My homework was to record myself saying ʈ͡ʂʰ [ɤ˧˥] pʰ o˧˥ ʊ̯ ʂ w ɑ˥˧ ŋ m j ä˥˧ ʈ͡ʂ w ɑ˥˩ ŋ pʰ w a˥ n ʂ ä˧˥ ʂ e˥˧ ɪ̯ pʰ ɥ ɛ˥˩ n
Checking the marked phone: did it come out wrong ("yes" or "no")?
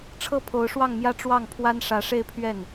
yes